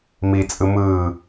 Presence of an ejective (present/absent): present